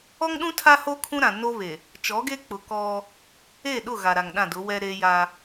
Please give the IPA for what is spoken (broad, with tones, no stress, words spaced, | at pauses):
ɔ˦ŋɗũ˦ tʰa˦ho˦ kʰũ˦ɾã˨no˦βe˨ | t͡ʃɔ˨˦ɡe˦k͡pʊ˨ kɔ˦ | e˦˨ɗʊ˦˨ ɣa˨ɾa˨ŋɗã˦˨ dʊ˨˦wɛ˦ ɾe˦ja˦